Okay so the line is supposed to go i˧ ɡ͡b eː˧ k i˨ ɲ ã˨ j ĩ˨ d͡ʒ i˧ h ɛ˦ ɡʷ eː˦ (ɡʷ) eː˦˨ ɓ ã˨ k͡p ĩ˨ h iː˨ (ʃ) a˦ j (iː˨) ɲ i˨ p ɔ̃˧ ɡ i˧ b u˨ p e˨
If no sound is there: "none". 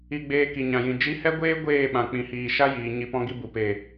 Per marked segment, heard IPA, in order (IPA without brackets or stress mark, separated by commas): ɡʷ, ʃ, iː˨